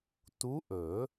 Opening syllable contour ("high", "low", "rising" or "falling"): rising